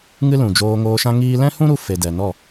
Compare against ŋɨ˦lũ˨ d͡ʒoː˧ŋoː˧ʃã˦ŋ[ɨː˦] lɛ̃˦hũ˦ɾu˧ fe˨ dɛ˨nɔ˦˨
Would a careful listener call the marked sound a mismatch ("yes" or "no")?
yes